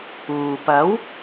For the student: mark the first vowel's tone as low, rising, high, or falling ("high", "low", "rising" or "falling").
low